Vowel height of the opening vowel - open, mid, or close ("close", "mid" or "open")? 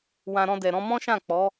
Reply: open